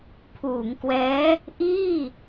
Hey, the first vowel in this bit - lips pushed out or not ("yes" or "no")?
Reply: yes